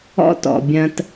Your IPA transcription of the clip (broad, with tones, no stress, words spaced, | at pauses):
ɔ̰˦tɔ̰˨bʲɐ̃˧t